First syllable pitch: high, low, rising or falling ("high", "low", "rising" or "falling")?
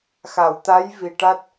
low